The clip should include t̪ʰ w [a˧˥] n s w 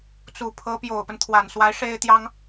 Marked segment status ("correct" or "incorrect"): incorrect